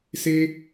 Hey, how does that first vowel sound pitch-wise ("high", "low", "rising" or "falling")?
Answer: high